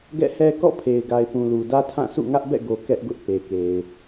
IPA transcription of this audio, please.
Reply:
ɡ ɛ̰˦˨ h ɛ˦ k ɔ̰˦˨ pʰ e˨ ɪ̯ ɡ a˨ ɪ̯ p ũ˨ l u˨ d ä˦ tʰ ã˦˨ s ṵ˦˨ ŋ ä˦ ʔ b ɛ̰˦˨ ɡ o˨ k ɛ˦ ʔ ɡ ʊ˦ ʔ p e˨ k e˨ ɪ̯

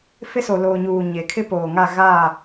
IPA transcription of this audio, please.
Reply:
f ɪ˦ s o˨ l oː˨ ɲ uː˨ ɲ e˨ kʰ ɪ˦ p oː˨ ŋ a˦˨ ɣ aː˦˨

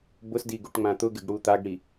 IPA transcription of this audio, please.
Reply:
b ʊ s d i ɡ u ʈ ŋ͡m ã t̪ ʊ ɡ ɪ ɡ ɽ u t̪ a ɡ ɽ i

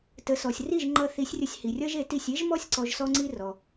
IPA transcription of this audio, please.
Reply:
t ə˩˥ s ɔ˩ sʲ r i˥˩ ʒ ŋ͡ǃ ʌ˧ θ i˩˥ sʲ rʲ ə˧ sʲ h i˩ rʲ ʌ˥ ʒ e˩˥ t i˥˩ sʲ e˥ ʒ m ɔ˥ sʲ ǀ ɔ˧ ʒ s ɔ˥ ŋ͡ǀ i˥ r ɔ˩

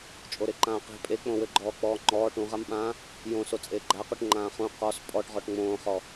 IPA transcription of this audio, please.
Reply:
t͡ʃʼ o ɾ e ǃ ãː q e̤ pʼ e k͡p õ w ɘ ɡ͡ǃ ɔː k͡p ɔː ŋ͡ǃ ɔː ʈ ũ ʁ a m ɓ ãː | j õ s o t͡sʼ eː ɡ͡ǃ a q u ʈ ŋ͡ǃ ãː χ ũ q ɔ s pʼ ɔ ʈ ʁ ɔ ʈ ŋ͡m õː χ ɔ

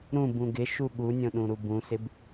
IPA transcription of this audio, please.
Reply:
ɾ ũ b ũ ɡ ɪ ʃ u ɠ u nʲ õ ɗ ũ ɾ u b ũ s ɪ b

